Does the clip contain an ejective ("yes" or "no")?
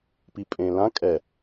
yes